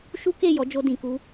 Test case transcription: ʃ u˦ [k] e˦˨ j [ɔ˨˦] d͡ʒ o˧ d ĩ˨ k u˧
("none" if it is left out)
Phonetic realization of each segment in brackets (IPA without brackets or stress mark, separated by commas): k, ɔ˨˦